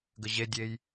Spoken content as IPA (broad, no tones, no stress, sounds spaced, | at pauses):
ɡ ə ʑ e dʲ e j